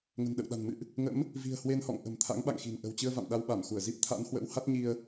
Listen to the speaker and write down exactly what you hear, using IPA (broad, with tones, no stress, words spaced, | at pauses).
ŋə̤˨˩nɗə̰˧˨wɗa̤˨˩n mɨ̰˧˨ʔ | ŋə̰˧˥m | vi̤˨˩ə̯hwe˧nhɔ̰˧˨ŋ ʔə̤˨˩m t̪ʰa̰˧˥ŋɓa̰˧˨ŋxi̤˨˩nʔə̤˨˩w t͡ɕɨ˧ə̯va̰˧˨m ɗa˧wɓa˧˩mxu˧˩ə̯ zi˦˥p̚t̪ʰa̰˧˥nhwə̰˧˥wha˦˥t̚ ɲi˧ə̯